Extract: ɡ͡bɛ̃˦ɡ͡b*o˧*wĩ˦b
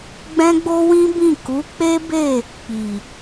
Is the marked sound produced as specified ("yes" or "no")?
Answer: no